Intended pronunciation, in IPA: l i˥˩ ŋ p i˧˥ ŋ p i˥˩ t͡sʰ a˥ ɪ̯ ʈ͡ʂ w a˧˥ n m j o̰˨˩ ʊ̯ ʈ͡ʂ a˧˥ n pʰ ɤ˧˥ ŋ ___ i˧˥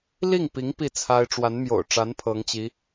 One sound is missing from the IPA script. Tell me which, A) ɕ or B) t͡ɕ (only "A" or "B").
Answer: B